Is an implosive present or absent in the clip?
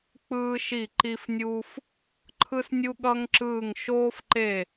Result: present